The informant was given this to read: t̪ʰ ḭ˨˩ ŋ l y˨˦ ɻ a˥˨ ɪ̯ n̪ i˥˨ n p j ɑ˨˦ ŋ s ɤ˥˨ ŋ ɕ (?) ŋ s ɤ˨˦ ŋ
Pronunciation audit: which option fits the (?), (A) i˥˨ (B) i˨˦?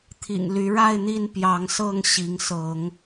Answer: B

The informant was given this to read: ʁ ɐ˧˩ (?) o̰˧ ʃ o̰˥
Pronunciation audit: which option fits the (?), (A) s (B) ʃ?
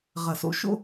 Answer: A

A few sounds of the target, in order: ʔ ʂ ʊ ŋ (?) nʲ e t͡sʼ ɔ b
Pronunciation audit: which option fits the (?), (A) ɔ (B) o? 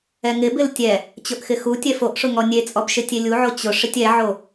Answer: A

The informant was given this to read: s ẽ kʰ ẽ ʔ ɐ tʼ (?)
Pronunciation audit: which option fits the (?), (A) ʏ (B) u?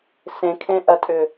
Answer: A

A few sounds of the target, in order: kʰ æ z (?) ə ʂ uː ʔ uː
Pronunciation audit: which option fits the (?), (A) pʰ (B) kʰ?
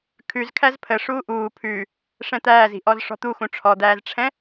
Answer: A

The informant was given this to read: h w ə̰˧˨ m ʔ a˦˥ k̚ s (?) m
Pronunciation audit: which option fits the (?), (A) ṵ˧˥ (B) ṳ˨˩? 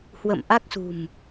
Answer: B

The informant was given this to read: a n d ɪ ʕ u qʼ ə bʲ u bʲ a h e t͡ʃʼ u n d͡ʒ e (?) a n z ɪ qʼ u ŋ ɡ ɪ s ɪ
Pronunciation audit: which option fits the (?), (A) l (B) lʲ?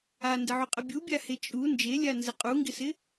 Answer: B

